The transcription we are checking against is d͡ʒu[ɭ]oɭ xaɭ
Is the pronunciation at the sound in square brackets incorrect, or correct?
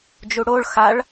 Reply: incorrect